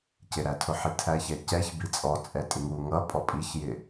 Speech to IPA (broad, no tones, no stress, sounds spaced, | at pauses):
c ɪ ɾ æ tʰ ʊ ħ i tʰ æ ç ɛ c ɛ ç b i t͡sʼ ɔ t͡sʼ ɛ tʼ ɪ ŋ u ŋ ʌ pʼ ɔ pʼ i ç j ɪ